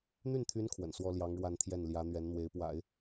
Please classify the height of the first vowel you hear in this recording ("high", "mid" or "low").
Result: high